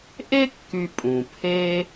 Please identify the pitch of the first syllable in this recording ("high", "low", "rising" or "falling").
high